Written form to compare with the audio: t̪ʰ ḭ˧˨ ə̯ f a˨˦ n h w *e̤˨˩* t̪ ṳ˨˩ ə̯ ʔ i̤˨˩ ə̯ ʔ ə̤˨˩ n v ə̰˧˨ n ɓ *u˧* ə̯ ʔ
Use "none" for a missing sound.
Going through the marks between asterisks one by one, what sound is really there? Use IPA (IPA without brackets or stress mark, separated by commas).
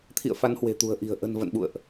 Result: e̤˨˩, ṵ˧˨